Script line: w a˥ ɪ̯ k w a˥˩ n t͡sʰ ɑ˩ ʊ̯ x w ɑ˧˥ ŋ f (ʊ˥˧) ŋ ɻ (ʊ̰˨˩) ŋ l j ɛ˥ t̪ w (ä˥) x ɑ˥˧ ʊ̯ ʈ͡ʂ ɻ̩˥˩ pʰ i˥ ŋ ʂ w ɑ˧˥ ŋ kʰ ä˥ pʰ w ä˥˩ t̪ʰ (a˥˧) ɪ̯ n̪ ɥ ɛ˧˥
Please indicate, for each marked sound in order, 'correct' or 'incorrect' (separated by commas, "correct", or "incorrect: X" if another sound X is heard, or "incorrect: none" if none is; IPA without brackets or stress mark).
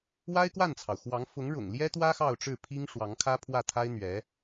incorrect: ʊ˧˥, correct, correct, incorrect: a˥